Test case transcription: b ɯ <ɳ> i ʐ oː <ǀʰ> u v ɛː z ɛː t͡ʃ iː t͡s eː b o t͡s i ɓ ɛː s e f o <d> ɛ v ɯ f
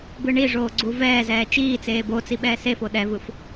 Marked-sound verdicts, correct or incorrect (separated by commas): correct, incorrect, incorrect